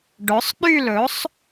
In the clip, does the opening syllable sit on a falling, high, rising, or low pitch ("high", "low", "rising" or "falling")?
rising